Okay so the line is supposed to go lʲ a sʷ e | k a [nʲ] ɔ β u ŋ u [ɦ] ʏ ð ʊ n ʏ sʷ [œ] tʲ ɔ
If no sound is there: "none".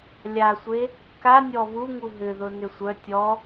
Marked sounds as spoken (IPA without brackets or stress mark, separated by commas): nʲ, ɦ, œ